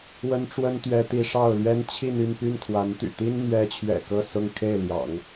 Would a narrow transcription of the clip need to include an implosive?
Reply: no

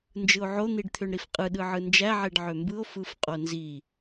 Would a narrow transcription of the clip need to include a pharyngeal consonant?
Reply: yes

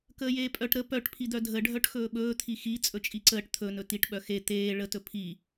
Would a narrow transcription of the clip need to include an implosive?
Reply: yes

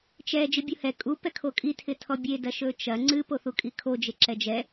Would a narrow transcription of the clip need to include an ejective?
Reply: yes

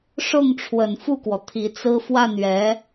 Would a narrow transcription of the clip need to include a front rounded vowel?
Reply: no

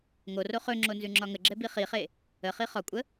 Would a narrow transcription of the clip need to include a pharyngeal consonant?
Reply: no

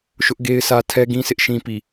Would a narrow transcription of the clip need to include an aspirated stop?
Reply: yes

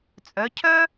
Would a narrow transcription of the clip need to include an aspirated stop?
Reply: yes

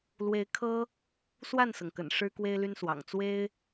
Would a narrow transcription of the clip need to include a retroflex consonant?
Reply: yes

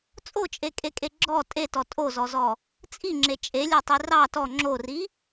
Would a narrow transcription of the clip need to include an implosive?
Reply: no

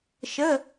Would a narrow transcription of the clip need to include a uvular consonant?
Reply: no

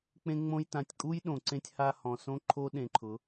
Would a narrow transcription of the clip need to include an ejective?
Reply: yes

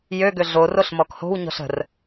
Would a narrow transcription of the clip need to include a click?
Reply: no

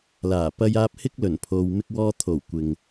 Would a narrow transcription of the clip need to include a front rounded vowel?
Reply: no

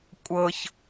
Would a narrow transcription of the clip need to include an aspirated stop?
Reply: no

